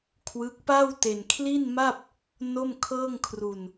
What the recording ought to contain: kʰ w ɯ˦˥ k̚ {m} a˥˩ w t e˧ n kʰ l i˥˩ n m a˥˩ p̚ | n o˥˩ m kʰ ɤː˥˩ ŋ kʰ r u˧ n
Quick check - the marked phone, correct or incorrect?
incorrect: p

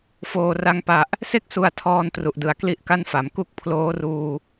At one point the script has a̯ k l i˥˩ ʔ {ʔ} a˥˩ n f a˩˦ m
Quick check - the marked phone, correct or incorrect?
incorrect: k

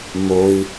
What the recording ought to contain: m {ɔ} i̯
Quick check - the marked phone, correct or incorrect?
incorrect: o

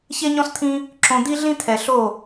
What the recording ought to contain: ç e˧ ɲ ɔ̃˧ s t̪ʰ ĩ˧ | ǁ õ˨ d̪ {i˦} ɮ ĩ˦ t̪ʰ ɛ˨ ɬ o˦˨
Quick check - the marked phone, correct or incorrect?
correct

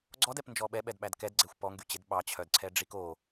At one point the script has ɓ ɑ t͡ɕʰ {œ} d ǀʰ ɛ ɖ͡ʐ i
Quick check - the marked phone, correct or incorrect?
correct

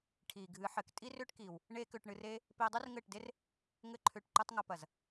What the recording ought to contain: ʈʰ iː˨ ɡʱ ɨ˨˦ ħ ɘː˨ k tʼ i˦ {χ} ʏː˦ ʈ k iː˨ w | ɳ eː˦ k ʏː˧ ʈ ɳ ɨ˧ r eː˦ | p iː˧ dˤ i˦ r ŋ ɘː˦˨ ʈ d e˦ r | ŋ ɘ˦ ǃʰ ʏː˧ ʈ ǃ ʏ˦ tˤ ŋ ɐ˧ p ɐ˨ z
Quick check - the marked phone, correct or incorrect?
incorrect: r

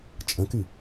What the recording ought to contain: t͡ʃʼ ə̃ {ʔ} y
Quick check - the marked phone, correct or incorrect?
incorrect: k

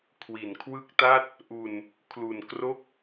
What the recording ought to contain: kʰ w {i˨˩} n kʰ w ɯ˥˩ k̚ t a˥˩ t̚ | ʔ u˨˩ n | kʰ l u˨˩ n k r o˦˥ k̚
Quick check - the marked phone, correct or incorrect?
incorrect: i˩˦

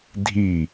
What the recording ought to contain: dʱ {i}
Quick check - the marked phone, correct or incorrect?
correct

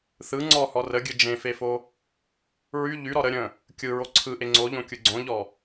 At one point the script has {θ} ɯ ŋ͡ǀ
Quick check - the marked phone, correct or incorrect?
correct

